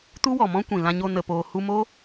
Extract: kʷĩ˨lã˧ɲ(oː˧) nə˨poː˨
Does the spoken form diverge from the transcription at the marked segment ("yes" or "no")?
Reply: yes